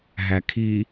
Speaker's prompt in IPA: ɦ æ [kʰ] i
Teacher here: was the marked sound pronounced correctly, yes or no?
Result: yes